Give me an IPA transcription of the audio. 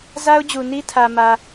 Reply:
z a˦ ʊ̯ d͡ʑ u˨ n i˦ tʰ ä˨ m ä˦

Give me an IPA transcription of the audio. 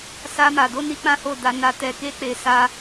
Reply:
s a˧ m a˨ d o˧ n i˧ k͡p ã˦ h o˦˨ d a˧ n a˨ t ɛ˨ k e˧ k͡p e˨ s a˧

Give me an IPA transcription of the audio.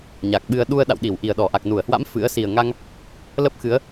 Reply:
ɲ a˨˩ k̚ ɓ ɨ˧ ə̯ ɗ u˧ ə̯ ɗ a̰˧˨ w ɗ i˧˩ w ʔ i˨˩ ə̯ ɗ ɔ˧˩ ʔ a˨˩ k̚ n u˧˩ ə̯ h w a̰˧˥ m f ɨ̰˧˥ ə̯ s i˨˩ ə̯ ŋ a˧ ŋ | l ə˦˥ p̚ x ɨ˨˦ ə̯

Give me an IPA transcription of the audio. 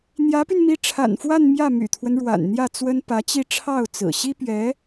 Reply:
n̪ j ä˧˥ p y˧ n m i˧˥ ʈ͡ʂʰ a̰˨˩ n f w a˥˧ n m j ä˥˩ m y̰˨˩ t̪ʰ w ə˦ n ɻ w a̰˨˩ n n̪ j ä˥˩ t͡s w ə˥ n p ä˧˥ t͡ɕ i˥˧ ʈ͡ʂʰ ɑ˥˩ ʊ̯ t͡s ɹ̩˨˩ ɕ i˥ p ɥ ɛ˧˥

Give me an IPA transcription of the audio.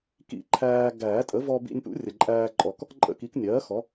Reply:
k ḭ˦˥ ǃʰ æː˧ ɡ æː˨˩˦ tʼ ə˩˥ v ɔ˧ b ḭ˧ nʲ p ṵ˦˥ rʲ ə˩ ǃʼ æː˧ ǃʼ ɔ˨˩˦ k | ǃʼ ə̰˦˥ k i˩˥ k nʲ ɜː˩˥ x ɔ˩˥

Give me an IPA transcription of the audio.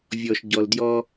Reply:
vʲ ɔ˨ ʃ ɟ ɔ˨ l d j ɔ˦

